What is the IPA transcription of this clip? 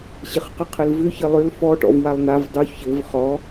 ɕɪχqəqʰɘlvʏ çɘlˠʏl fɔ ʈɔ̰vwalˠn̪av dˤu çɘv χɔ

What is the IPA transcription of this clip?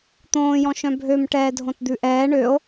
t̪õːjɔ̃ ʃœ̃bʱøm ʈɛːdʱõtd̪ʉʔɛː ɳøo̯

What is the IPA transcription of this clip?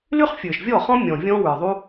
ly˦χfʲə˞˨ʃvʲɔ˦˨χɔ̃˦ mʲɔ̃˨vʲɔ̃˦ wə˞˨ðˤu˦

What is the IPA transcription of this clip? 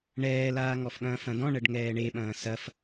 ɳɛːlaːŋɔfɠɐ̃ː fɐ̃dɔ̃ ɳɐɖŋɛːɳeɓɐ̃ː sɐf

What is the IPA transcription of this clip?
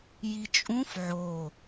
jit͡ʃʼũf ʕo

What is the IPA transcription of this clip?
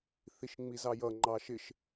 θiʃŋ͡mizɑjʌ ŋ͡ǃɑʃɪʃ

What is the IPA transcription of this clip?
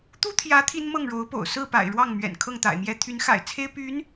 t̪u˥t̪ʰjä˧˥ t̪ʰi˥nmɤ˥˩ŋɻo˧˥ʊ̯po̰˨˩ʊ̯ sɹ̩˥˩ pa̰˨˩ɪ̯ɻwɑ˥˩ŋ mɥɛ̰˨˩nkʰɤ˥˩ŋt̪a̰˨˩ɪ̯mjɛ˥ t̪ʰy˧˥nxa̰˨˩ɪ̯t͡sʰe˥ɪ̯ py˧˥n

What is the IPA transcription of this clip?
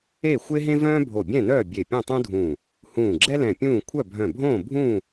e˥˨ xʷe˥ɦẽ˥vœ̃ː˥ bʱo˧˩bʲɛ̃˥˨nœː˥˨ bʲe˧˩pʲœ̃˥˨tˤũ˥dʱũː˧˩ | hũː˧˩ɡ͡ǁɛ˥lɛ̃˧˩ pʲũː˥˨ kʷʰœ˥˨ bʱœ̃˧˩bʱõː˥˨ bʱũː˥˨

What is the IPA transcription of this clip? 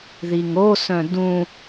ðiŋosœ̃ dũ

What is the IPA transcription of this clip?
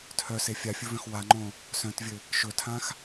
tʰœse fʲafʲɵvœ̃x waŋ͡ǃõ | sœ̃tvʲɘ | ʃɵtʰãx

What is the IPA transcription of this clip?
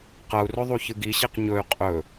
qɐu̯rɵ ðˤuçɨɡiɕiq ɲɵy̯ qʼɵ

